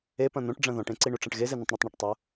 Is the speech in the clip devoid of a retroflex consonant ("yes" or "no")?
no